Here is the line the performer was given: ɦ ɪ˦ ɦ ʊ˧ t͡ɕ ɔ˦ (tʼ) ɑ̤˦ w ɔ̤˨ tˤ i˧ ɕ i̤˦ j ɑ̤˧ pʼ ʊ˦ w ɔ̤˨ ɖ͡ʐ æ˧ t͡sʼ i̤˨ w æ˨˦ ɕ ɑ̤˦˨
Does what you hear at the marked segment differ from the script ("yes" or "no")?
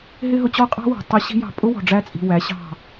yes